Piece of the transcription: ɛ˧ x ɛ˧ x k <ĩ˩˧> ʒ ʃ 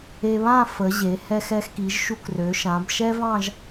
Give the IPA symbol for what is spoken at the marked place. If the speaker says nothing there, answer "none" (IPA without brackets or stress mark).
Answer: i˩˧